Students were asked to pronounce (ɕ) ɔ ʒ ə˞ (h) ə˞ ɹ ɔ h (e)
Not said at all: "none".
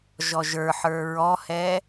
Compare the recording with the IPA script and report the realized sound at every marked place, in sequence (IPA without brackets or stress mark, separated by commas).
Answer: ʒ, ħ, ɛ